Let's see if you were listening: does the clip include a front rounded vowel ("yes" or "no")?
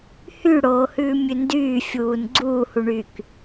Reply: yes